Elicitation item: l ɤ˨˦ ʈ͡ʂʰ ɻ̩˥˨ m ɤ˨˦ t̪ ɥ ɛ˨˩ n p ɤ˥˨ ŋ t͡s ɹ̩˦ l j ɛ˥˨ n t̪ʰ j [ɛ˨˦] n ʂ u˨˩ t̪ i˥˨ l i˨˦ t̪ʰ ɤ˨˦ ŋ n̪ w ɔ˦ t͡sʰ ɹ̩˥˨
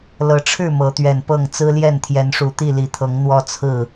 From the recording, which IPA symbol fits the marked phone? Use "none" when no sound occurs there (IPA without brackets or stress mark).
ɛ˨˦